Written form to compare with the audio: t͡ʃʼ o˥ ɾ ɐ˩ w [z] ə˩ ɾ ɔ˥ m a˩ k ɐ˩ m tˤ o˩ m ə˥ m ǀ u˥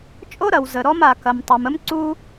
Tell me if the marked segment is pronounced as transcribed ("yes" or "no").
yes